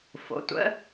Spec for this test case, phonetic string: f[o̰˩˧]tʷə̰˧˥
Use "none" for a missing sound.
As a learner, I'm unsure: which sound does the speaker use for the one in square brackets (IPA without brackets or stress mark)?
o̰˩˧